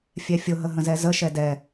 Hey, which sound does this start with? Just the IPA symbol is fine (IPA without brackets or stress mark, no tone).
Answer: fʲ